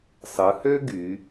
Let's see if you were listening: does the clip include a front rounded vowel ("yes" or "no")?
yes